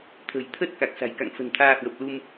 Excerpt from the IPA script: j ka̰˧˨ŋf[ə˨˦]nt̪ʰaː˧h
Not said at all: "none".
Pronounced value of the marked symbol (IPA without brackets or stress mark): ə̤˨˩